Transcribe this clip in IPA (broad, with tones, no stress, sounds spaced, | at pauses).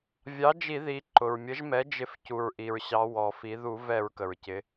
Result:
vʲ ɑ˩˥ d͡ʒ i˧˩˧ ð i˩˧ ǃ ʊ˩ ɹ mʲ ə˩˥ ʒ m ɛ˩˥ d͡ʒ ɪ˧˩˧ f c u˩ ɹ ʔ i˩ ɹ ɕ ɑ˩˧ w ɔ˩ f i˩˧ ð u˧˩˧ v ɛ˧˩˧ ɹ k ə˩ ɹ c ɪ˩˧